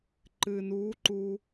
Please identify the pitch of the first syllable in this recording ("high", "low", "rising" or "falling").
low